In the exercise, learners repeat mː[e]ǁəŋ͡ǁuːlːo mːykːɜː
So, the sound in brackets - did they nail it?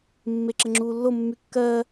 yes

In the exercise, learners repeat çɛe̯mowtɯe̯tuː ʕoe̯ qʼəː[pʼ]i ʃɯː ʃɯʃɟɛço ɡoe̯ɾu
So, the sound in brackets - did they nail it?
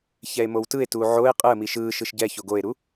no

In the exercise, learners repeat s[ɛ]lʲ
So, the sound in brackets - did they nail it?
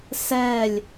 yes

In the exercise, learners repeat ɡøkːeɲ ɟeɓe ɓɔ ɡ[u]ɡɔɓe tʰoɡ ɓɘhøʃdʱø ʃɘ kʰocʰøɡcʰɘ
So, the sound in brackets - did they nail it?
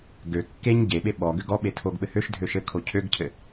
no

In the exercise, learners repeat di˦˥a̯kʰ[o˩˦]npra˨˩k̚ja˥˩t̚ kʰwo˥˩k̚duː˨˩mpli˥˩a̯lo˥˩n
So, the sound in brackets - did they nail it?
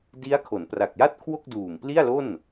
yes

